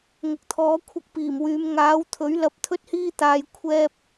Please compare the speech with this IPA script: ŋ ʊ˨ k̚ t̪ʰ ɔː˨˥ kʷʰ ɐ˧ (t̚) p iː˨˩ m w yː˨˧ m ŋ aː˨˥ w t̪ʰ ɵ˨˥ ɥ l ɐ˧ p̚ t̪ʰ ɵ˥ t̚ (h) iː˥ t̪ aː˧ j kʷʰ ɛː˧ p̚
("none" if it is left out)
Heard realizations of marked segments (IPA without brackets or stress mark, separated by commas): k̚, h